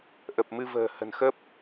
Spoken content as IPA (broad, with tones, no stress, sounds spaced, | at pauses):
ʔ ə˨˩ p̚ m ɨ˧ v ə̤ː˨˩ h ə̤˨˩ n x ə˦˥ p̚